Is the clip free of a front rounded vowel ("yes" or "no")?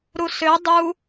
no